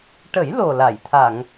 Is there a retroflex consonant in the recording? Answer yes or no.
yes